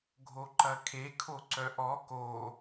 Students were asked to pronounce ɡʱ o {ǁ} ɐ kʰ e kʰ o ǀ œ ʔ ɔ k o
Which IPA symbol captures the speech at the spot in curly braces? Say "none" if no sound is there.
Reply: ǃ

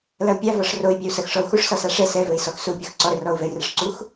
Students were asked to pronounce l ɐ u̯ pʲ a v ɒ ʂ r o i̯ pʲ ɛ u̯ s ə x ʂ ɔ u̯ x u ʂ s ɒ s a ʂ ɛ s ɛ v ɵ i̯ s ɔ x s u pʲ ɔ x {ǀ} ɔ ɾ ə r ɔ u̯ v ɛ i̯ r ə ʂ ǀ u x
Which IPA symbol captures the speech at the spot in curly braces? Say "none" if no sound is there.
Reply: ǀ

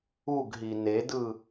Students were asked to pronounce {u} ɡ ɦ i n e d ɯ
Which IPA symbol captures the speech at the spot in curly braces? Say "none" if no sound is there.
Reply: u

